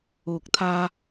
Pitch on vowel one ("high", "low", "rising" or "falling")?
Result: low